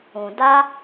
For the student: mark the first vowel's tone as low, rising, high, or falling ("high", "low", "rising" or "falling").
low